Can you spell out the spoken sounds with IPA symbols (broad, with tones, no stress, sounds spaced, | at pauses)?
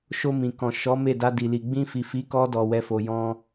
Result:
ʃ o˧ m ĩ˨ k ɔ̃˨ ʃ ɔ˨˦ m e˦˨ d a˧ d i˨ l i˨ ɡ͡b ĩ˧ f i˨ f i˨˦ k ɔ˧ d ɔ˨ w ɛ˨ f o˨ j ɔ̃˧